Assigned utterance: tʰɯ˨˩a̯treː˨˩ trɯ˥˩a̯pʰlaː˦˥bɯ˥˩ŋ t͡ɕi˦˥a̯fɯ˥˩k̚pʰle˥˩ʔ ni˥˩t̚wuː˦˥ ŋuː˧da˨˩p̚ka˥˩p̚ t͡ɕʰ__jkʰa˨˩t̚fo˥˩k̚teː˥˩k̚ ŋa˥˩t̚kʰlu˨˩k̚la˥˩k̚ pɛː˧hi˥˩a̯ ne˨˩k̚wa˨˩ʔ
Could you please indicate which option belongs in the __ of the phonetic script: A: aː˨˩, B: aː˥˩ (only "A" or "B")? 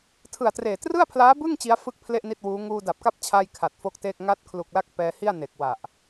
B